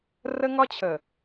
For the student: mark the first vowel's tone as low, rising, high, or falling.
high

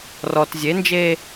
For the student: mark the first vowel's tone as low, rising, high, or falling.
low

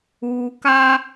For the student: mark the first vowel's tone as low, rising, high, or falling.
low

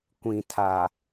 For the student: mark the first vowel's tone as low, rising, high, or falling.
low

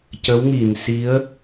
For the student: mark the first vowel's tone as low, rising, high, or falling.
rising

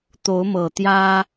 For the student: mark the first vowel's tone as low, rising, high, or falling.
rising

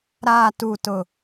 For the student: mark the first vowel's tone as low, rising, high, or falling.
low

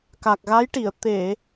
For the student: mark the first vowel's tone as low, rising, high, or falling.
low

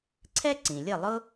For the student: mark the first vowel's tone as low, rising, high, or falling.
high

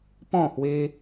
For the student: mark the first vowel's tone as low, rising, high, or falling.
falling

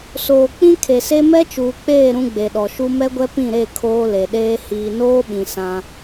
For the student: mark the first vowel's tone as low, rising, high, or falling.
low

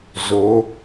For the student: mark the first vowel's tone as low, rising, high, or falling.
rising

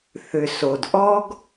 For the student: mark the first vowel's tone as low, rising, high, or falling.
low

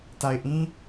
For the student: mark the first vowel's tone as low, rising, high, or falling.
low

